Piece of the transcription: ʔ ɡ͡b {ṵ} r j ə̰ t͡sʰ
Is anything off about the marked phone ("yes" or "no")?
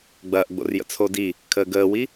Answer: yes